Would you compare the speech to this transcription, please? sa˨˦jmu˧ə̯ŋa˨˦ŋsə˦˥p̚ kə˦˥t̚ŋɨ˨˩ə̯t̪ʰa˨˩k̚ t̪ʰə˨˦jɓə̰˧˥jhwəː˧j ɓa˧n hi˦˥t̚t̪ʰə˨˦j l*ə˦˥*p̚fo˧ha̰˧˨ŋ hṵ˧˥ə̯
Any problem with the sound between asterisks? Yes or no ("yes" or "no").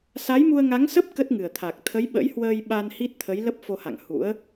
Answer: no